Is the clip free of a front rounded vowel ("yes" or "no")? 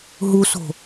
yes